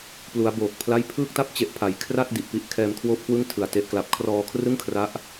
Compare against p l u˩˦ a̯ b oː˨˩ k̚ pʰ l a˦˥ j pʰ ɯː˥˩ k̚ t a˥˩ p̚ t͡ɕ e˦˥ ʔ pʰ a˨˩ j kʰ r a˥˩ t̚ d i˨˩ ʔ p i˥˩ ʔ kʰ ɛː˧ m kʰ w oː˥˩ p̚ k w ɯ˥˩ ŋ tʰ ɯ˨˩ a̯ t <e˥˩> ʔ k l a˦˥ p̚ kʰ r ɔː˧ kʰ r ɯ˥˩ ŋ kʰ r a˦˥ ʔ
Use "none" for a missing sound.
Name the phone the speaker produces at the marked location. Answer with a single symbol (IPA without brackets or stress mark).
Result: e˥˩